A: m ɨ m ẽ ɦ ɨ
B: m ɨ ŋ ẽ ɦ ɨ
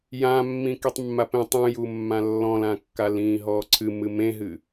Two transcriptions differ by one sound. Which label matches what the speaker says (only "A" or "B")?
A